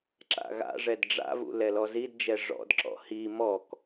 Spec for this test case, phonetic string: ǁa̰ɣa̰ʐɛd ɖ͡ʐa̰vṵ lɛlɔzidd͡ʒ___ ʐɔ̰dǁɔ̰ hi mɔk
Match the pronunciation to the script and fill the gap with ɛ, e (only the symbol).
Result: ɛ